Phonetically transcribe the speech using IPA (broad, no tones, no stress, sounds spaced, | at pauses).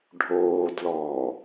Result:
ɖʱ oː d l ɔː